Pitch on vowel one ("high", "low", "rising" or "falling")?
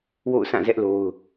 falling